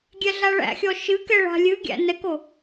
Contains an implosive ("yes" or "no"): no